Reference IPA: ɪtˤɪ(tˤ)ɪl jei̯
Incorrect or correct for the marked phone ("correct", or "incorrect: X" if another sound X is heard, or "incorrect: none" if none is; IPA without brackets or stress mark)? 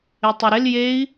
incorrect: ɾ